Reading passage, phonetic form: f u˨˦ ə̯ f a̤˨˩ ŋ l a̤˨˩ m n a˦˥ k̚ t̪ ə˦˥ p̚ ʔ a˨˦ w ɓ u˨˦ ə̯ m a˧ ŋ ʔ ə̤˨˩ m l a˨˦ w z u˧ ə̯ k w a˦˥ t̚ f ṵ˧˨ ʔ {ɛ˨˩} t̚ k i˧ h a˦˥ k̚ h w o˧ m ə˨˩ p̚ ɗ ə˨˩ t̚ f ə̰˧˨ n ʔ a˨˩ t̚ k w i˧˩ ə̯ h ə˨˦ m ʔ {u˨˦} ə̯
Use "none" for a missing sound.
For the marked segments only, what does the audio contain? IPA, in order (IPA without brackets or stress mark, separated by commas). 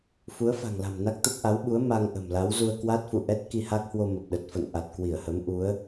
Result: ɛ˦˥, u˨˦